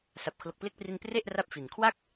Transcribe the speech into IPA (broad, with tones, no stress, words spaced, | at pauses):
sa˨˩p̚kʰlo˨˩k̚ple˦˥k̚pri˧n pre˥˩ʔra˦˥p̚ fi˨˩n kʰwa˦˥k̚